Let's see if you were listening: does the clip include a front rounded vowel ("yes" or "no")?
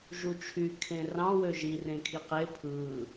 yes